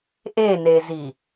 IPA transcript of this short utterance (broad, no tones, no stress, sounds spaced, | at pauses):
ʔ e n e z i